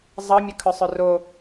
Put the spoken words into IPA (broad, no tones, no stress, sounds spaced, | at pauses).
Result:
zˤ ʌ mʲ ʌ kʰ œ sˤ œ r o